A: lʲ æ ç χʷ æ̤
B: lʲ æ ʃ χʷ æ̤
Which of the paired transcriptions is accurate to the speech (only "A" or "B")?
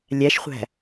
B